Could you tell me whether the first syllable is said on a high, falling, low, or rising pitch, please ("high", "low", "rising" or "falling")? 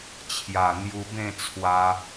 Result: low